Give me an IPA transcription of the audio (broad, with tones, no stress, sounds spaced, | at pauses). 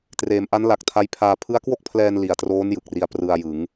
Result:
t r eː˩˦ m ʔ a˦˥ n l a˨˩ k̚ tʰ a˦˥ j pʰ aː˧ pʰ ɯ˦˥ a̯ k w o˥˩ k̚ pʰ l ɛː˧ n l i˨˩ a̯ t r oː˦˥ n j ɯ˨˩ k̚ r i˧ a̯ p r ɯ˧ a̯ j ɯ˩˦ ŋ